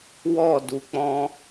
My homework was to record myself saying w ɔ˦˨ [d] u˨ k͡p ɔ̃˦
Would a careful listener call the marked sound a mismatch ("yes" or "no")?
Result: no